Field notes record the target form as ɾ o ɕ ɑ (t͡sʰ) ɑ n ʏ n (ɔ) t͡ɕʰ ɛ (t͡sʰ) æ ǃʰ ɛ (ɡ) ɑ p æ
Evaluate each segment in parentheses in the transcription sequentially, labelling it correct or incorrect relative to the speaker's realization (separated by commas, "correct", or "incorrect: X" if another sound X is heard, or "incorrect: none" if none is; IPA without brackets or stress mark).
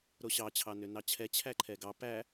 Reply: incorrect: t͡ɕʰ, incorrect: ɑ, incorrect: t͡ɕʰ, correct